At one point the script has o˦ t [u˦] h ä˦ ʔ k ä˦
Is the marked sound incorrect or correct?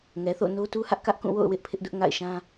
correct